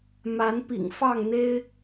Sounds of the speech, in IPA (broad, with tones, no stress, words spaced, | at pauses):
ma˨˦npḭ˨˩ŋfɑ˥˨ŋn̪e˦ɪ̯